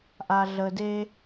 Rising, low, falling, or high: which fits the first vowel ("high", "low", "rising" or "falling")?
low